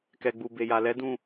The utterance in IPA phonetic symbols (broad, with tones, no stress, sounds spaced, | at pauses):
k ɛ˨ ɡ͡b u˨ b e˨ j a˨ l ɛ˨˦ d ũ˦˨